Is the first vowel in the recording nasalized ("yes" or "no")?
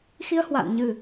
no